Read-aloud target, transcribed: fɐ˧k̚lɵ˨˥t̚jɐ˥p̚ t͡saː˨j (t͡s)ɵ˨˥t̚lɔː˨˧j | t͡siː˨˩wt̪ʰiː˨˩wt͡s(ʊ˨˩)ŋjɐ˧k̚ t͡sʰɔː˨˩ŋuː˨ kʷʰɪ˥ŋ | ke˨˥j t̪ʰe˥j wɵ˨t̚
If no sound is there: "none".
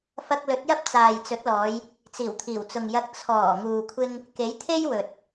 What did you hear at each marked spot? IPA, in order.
t͡s, ʊ˨

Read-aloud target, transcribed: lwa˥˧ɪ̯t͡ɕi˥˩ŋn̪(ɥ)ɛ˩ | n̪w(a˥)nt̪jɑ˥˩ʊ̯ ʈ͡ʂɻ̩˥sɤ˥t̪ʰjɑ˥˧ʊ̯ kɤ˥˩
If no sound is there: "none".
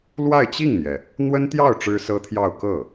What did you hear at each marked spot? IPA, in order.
j, ə˥

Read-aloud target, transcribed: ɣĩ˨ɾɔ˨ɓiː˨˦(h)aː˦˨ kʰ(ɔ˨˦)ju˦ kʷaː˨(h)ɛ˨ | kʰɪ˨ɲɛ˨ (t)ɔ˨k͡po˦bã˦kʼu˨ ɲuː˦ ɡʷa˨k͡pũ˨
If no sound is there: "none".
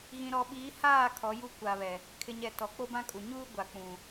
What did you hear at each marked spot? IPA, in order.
h, ɔ˨˦, β, t

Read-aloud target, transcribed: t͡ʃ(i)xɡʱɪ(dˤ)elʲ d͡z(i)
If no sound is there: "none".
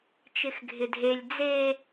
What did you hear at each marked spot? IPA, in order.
ɪ, dʱ, e

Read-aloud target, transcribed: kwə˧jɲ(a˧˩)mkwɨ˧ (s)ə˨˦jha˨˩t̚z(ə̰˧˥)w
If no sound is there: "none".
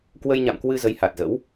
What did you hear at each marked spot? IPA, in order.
a̰˧˨, z, ə̰˧˥

